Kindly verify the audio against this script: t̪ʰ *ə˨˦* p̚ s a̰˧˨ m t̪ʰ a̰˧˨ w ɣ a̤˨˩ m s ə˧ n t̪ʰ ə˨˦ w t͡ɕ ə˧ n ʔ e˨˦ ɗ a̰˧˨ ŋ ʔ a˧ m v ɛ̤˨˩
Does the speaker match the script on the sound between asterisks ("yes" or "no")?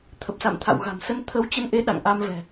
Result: no